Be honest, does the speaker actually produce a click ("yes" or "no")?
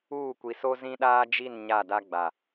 no